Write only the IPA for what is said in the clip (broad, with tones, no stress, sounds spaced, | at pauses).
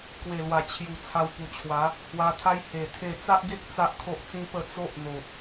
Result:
k w e˨˩ l w a˨˩ t͡ɕʰ j u˨˩ t͡sʰ a˧ w p u˨˩ t͡ɕʰ w a˨˦ | h w a˧ t̪ʰ a˦ j h e˨˩ t̪ʰ e˥˧ t͡s a˦ ʔ ɡ e˦ k̚ t͡s a˦ ʔ kʰ o˦ ʔ t͡s ĩ˦ p ə˥˧ t͡s o˦ ʔ n̪ o˨ t̚